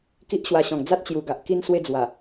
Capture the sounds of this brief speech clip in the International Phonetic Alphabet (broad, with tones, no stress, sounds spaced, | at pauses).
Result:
k i˦ ʔ ɕ w a˧ ɕ ɔ̃˨˩ ŋ d͡z a˦ t̚ t͡ɕ j u˨˩ ɡ a˨ ʔ k i˧ n s w e˧ d͡z w a˨˩